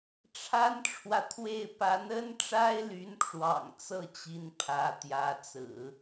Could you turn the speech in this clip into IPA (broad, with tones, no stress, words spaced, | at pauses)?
ʈ͡ʂʰa˥nʈ͡ʂʰwä˨t̪ʰwe˥˩ɪ̯ pa˧˥nə˥nʈ͡ʂa˥ɪ̯ly˧˥n ʈ͡ʂwɑ̰˨˩ŋt͡sɤ˥˩t͡ɕi˧˥n pʰä˧˥t̪jä˧˥t͡sɹ̩˨˩˦